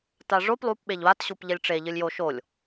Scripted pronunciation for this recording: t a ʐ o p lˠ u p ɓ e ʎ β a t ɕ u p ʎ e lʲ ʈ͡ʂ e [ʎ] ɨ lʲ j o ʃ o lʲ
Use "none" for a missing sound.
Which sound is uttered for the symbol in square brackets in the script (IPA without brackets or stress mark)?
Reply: ʎ